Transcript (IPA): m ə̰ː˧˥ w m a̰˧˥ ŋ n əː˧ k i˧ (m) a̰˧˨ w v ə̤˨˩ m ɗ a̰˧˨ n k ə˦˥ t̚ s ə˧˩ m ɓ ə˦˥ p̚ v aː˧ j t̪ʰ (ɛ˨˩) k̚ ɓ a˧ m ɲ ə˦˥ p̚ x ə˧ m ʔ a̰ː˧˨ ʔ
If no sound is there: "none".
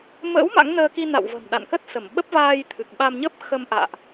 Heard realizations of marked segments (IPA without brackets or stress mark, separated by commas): n, ɨ˨˩